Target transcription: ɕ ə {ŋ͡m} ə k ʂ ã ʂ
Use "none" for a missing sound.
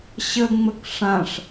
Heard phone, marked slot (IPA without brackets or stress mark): ŋ͡m